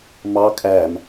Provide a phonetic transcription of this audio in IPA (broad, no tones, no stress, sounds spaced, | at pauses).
m ɑ kʼ æ m